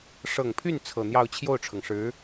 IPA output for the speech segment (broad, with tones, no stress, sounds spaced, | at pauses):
ʂ ɤ˨˩ ŋ pʰ y˥˩ n t͡sʰ ɤ˨˩ n̪ j ɑ˥˧ ʊ̯ t͡ɕʰ j o˥˩ ʊ̯ ʈ͡ʂʰ ɤ˩ ŋ ʂ ɻ̩˧˥